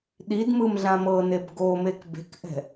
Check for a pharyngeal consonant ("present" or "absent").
absent